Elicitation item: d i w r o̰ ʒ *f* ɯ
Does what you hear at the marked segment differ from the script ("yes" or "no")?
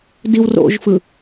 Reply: no